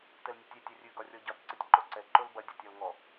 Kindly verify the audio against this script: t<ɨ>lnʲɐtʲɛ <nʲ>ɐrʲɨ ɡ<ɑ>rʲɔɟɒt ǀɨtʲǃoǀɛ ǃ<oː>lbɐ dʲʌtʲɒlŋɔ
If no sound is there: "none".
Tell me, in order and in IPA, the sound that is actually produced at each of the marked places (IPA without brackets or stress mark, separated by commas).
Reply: ɛ, tʲ, ɒ, o